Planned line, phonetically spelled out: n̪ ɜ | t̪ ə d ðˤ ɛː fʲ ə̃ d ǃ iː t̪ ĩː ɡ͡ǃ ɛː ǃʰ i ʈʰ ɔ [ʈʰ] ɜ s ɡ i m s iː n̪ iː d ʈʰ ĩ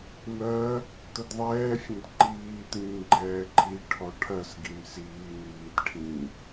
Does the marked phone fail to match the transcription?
no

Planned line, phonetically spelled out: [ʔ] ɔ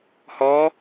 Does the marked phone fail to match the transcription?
yes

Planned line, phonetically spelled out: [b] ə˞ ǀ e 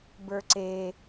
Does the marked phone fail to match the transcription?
no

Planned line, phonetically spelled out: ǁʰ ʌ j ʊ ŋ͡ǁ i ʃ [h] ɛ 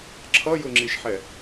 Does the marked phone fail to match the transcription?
yes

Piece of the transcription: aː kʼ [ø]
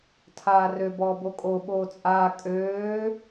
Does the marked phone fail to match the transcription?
yes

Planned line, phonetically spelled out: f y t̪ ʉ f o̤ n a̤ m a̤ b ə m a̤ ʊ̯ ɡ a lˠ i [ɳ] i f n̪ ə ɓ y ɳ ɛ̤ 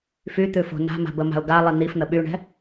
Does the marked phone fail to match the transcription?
yes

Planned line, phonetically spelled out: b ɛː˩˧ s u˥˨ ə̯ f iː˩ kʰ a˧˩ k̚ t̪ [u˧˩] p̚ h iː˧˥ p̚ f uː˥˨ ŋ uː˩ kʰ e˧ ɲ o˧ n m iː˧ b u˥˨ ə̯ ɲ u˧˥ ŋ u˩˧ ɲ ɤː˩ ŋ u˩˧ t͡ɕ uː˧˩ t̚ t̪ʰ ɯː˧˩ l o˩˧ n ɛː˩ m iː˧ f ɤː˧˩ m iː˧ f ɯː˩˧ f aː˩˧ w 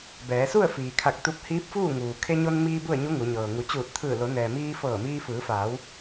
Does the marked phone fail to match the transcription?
yes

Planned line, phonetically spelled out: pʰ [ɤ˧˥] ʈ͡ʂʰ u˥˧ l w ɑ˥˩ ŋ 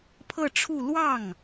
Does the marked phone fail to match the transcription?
yes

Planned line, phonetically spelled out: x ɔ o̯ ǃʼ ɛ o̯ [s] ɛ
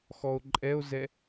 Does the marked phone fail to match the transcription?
yes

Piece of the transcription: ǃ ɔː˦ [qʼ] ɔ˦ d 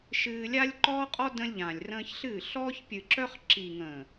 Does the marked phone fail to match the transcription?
no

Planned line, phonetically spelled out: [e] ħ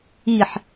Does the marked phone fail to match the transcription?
yes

